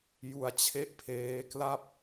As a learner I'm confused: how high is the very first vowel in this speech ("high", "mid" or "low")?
high